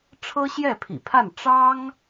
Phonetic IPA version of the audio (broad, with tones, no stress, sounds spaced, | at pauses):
ʈ͡ʂʰ ɤ˥ ɕ j ɛ˥˩ pʰ ḭ˨˩ pʰ a˥˩ n ʈ͡ʂ ɑ˥ ŋ